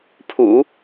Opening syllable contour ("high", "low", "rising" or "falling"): low